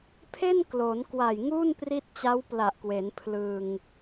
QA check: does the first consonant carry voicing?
no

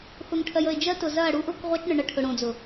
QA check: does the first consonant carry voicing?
no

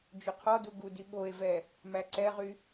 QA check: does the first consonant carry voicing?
yes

